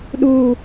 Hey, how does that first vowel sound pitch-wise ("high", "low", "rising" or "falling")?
low